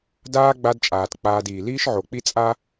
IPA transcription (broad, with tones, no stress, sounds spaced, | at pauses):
d aː˥ ɡ͡b a˦ d t͡ʃʼ aː˩ t k͡p aː˨ d iː˩ l iː˥ ʃ ʕ o˩ k͡p i˦ t͡sʼ a˦